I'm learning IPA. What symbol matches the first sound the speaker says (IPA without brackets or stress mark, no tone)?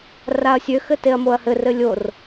r